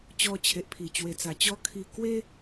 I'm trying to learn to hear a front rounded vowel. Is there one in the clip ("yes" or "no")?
no